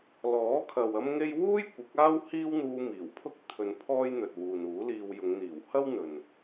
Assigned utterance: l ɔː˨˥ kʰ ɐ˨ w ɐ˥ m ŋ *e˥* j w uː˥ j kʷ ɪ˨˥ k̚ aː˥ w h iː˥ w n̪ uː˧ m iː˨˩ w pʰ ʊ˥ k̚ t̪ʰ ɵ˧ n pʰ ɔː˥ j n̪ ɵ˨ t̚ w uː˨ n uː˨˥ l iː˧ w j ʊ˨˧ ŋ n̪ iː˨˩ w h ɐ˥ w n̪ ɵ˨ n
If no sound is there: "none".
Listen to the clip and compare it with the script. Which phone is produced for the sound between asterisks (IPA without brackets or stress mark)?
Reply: e˥